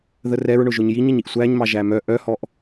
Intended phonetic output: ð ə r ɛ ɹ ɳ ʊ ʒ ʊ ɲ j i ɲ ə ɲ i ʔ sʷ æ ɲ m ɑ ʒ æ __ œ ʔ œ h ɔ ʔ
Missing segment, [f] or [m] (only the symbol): m